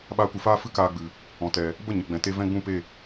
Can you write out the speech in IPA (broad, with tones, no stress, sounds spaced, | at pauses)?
ɓ aː˧ kʷ ɨ˨ f aː˦ f ɨ˦ k aː˧ ɡ͡b ɨ˨ | ɔ̃˨ t ɛ˨ | b ə˦˨ ɲ ə˨ ɡ͡b ɛ̃˨ t e˧ v ɛ̃˦ ɡ͡b ũ˦˨ p e˦˨